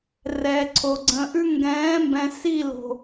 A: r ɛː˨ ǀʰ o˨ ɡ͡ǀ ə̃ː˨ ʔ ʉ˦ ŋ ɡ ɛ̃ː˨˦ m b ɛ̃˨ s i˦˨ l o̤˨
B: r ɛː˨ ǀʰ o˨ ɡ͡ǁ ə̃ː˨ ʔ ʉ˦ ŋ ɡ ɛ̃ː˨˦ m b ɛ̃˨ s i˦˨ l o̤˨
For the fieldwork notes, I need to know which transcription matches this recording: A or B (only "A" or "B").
A